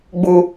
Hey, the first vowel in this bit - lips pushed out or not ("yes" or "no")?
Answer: yes